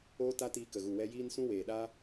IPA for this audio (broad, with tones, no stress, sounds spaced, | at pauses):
oː˦ t a˦ t iː˧ k ə˨ ɣ u˨ w ɛ˧ j iː˧ n s ũ˧ w eː˨ ɗ aː˧